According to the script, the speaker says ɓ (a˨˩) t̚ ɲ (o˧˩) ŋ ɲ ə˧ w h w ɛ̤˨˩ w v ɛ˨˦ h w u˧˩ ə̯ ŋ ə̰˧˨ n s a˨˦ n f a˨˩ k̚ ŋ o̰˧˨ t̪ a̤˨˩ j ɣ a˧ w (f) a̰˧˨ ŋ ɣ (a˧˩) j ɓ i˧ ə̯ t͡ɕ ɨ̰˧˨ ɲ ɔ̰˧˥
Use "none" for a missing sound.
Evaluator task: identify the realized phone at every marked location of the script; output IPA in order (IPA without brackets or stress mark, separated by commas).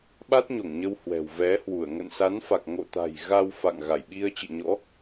a˦˥, o˧˩, f, a˧˩